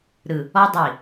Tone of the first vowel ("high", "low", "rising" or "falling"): low